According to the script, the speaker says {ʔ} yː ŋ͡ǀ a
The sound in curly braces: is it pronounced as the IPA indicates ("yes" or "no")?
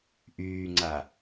yes